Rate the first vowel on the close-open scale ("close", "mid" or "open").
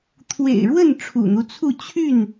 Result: mid